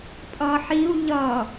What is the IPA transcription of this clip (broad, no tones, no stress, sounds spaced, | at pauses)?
pʼ ʌ ħ i u̯ ʎ ʌ